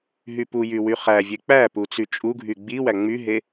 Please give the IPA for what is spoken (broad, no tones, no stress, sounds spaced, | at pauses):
ɦ y p u j y w y χ æ vʲ e k͡p æ p u t͡s y t͡ʃʼ u ɡʱ y ɡ͡b i w æ ŋ͡m y ɦ e